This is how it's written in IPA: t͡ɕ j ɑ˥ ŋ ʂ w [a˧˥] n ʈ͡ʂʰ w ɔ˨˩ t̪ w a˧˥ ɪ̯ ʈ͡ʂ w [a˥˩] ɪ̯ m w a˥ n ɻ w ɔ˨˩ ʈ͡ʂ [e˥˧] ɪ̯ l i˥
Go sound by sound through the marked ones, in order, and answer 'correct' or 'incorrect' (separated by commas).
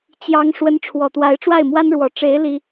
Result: incorrect, correct, incorrect